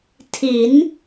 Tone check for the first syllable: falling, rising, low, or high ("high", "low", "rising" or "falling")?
rising